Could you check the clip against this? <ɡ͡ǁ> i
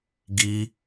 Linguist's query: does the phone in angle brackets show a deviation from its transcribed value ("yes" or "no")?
yes